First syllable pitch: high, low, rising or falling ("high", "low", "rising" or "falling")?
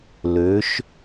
rising